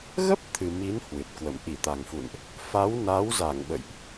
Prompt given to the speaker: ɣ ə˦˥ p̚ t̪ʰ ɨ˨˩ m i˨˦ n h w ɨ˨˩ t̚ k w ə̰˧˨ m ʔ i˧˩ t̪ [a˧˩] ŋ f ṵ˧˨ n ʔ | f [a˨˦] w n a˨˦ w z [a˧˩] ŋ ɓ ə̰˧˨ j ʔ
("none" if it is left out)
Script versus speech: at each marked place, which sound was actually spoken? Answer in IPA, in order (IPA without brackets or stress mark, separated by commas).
a˨˩, a˨˦, a˧˩